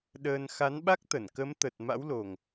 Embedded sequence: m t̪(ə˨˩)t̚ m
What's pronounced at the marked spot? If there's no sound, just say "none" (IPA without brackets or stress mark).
ə˨˩